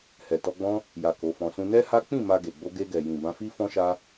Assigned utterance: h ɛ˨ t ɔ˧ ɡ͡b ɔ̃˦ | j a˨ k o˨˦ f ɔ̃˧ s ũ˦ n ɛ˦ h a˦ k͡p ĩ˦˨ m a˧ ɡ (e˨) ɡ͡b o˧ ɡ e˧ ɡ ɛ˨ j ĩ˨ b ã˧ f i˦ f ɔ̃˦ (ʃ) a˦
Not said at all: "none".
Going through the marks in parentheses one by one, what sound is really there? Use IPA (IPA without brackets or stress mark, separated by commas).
e˨, ʃ